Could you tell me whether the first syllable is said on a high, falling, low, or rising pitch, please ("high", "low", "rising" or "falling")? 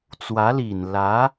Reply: rising